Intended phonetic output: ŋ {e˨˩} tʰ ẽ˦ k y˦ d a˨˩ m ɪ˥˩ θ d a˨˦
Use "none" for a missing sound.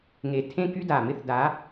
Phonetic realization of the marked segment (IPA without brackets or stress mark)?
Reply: e˨˩